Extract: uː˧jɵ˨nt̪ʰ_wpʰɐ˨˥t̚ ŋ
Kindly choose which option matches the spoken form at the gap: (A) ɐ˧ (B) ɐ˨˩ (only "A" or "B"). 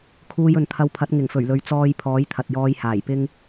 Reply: A